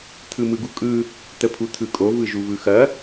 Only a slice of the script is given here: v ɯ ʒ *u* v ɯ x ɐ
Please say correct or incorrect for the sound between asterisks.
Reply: correct